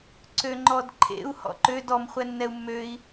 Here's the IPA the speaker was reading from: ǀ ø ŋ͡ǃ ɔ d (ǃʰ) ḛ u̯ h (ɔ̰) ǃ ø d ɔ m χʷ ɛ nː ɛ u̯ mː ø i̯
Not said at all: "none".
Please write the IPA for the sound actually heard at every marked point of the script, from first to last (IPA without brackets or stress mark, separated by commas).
ǃʰ, ɔ̰